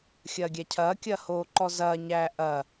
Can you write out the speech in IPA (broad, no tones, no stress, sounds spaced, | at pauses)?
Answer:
xʲ ɐː ɡʲ æ cʰ ɐː kʲ ɐː h oː ǃ ɔ z ɐː ɲ æː ʔ ɐ